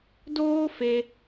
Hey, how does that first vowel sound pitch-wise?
high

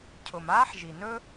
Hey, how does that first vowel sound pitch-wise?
low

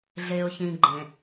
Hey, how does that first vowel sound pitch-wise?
low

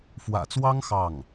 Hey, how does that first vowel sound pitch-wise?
low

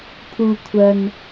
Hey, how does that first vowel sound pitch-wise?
low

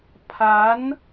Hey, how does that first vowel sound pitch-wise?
rising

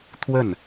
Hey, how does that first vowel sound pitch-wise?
falling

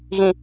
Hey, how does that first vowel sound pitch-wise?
low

